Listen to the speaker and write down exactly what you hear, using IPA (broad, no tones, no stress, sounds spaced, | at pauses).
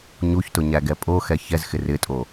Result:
ɲ u ç t ʊ ɲ æ ɡ ɛ pʼ o x ɛ ç ɛ z x ɪ r ɪ tʼ o